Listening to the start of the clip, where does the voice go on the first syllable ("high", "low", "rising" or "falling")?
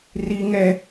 high